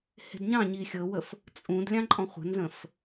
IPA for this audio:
h e̤ d ɲ ɑ̃ ɲ i xʲ ɤ w ə f | t͡sʼ ũ d lʲ ɑ̃ ǃʼ ɔ̃ χʷ ə̤ n z ə̃ f

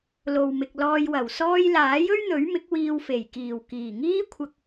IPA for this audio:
l o˨ w m ɪ˨ k̚ l ɔː˧ j w ɐ˨˩ w s ɔː˧ j l aː˨˥ j ɵ˥ ɥ n̪ ɵ˨˥ ɥ m ɪ˨˥ k̚ w iː˧ w f e˨˩ j k iː˨˩ w k iː˨˩ ŋ iː˥ kʷʰ ɐ˧ k̚

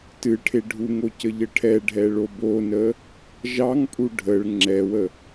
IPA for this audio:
t ɨ ʈʰ e ɖʱ u ŋ o c ə ʎ ə ʈʰ ɛ ɖʱ ɛ ɭ o b o n ə | ʒ ɑ ŋ pʼ u ɖʱ ə ɭ ŋ͡ǁ ɛ w ə

